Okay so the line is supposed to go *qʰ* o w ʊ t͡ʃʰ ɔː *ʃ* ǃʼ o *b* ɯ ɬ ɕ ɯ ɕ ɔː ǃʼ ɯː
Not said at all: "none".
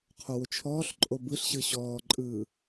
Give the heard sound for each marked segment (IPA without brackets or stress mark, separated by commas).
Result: qʰ, ɬ, b